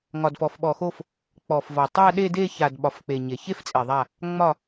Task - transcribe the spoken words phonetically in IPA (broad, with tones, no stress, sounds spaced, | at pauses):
ŋ ɒ˩ d f ɔ˩ f ɓ ɔ˩ x o˧˩ f | k͡p ɔ˩ f v ɒ˩ tˤ a˥˧ ɗ e˥˧ d e˥˧ ç a˩ d ɓ ɒ˩ f k͡p e˩ ɲ e˩ ç e˥˧ f t͡sʼ e˩ ðˤ a˧˩ | ŋ͡m ɒ˧˩